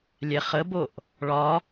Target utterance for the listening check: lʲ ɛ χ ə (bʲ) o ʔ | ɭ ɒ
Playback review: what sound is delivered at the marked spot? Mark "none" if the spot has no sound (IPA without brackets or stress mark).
b